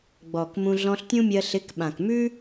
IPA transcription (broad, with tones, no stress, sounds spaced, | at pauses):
ɡ͡b ɔː˨ k m ũ˧ ɮ ɔ̃˧ ɬ tʲ ũ˦ mʲ ɜ˧ ɬ ɪ˨˦ k ɓ ã˨ k m ʉ˦